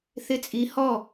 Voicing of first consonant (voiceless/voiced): voiceless